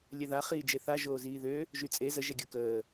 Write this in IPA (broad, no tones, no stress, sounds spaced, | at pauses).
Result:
lʲ ɛ ð a χ iː d͡ʒ e θ a ʒ oː z iː ð ø | ʒ y t͡sʼ e z ə ʒ ɛ ɡʲ u k əː